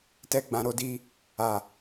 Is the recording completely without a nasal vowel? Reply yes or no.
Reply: no